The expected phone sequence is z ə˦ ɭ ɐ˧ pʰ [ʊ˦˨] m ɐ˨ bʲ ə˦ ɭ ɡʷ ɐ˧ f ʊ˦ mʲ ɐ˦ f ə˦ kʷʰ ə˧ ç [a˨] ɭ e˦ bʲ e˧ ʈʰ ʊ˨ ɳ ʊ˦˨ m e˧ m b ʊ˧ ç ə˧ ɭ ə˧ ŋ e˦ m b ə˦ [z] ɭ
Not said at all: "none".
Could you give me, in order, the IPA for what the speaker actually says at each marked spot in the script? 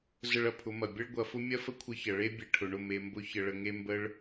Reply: ʊ˨˦, ɐ˨, none

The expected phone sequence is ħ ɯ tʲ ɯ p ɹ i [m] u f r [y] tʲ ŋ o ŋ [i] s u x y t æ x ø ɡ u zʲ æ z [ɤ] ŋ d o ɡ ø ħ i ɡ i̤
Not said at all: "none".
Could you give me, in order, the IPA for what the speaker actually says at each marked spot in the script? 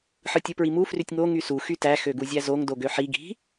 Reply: m, y, y, o

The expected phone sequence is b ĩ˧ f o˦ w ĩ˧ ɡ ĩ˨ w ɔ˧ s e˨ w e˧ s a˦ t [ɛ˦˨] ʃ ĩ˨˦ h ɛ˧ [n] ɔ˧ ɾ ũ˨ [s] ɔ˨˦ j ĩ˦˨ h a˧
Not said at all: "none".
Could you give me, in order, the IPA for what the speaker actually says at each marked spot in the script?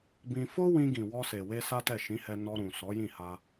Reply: ɛ˦˨, n, s

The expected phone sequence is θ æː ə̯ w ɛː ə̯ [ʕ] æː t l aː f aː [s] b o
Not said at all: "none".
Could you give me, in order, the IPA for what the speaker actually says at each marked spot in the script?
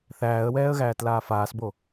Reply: ɣ, s

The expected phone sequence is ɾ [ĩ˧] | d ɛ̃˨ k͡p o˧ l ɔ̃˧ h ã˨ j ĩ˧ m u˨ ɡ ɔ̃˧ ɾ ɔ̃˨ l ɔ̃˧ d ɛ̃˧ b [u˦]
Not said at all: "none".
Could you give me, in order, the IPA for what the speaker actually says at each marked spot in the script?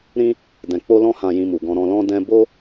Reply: ĩ˦, o˦

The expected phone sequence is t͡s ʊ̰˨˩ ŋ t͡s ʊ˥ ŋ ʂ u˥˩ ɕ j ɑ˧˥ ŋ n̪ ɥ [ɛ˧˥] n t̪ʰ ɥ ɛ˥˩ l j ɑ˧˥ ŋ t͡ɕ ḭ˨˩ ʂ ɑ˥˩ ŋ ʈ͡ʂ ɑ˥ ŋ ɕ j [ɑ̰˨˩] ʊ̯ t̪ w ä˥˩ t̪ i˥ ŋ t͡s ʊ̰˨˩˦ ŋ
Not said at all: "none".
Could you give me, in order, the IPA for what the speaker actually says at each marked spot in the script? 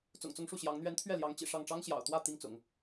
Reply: ɛ˧˥, ɑ̰˨˩

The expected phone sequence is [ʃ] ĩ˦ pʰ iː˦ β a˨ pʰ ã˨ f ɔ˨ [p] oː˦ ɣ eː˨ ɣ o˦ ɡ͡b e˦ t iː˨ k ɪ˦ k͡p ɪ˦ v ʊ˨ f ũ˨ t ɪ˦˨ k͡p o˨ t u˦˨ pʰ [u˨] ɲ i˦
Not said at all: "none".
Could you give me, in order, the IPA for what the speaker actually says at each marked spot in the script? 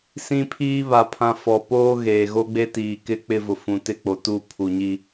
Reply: s, p, u˨

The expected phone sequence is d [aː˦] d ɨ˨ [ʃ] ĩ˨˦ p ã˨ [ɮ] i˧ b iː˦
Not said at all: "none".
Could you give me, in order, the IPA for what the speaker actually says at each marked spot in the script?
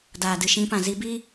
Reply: aː˨, ʃ, z

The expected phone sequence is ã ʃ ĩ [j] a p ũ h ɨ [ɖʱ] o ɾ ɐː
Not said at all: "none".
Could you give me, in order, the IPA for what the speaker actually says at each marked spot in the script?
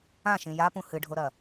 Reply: j, ɖʱ

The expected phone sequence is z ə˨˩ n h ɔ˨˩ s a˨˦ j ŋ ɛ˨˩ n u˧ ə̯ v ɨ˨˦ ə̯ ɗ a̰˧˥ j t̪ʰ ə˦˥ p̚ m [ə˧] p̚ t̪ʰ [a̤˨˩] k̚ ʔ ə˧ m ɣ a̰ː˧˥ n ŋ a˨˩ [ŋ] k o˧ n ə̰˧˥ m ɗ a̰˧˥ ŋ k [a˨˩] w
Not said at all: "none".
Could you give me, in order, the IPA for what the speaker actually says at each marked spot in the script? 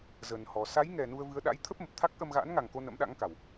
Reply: ə˨˩, a˦˥, ŋ, a˨˩

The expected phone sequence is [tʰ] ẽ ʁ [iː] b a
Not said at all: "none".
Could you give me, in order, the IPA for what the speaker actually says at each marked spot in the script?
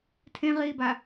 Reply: tʰ, iː

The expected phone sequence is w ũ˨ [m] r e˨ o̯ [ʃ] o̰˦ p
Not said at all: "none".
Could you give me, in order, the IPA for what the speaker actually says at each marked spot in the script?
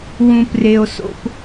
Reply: p, s

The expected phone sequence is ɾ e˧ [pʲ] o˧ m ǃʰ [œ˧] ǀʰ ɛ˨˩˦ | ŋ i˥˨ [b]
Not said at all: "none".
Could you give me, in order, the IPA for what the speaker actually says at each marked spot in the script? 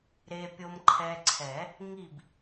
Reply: pʲ, ɛ˧, b

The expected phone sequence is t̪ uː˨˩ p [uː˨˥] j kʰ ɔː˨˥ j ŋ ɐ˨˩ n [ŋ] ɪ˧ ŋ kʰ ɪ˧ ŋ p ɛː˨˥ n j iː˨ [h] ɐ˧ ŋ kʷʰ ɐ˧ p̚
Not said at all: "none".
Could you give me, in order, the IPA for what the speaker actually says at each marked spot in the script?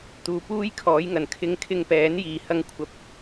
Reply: uː˥, kʰ, h

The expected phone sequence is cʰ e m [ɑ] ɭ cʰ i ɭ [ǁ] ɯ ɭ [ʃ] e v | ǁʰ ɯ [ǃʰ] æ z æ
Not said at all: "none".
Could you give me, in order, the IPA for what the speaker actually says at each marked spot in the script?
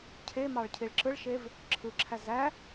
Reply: ɑ, ǁ, ʃ, ǁʰ

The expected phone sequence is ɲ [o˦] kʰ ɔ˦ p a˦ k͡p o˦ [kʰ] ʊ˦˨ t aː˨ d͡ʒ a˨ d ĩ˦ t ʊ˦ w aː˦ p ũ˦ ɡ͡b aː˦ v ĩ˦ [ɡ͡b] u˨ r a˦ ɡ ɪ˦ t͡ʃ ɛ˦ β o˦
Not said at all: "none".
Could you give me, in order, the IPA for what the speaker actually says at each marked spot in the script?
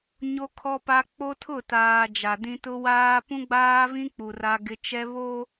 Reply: o˦, tʰ, k͡p

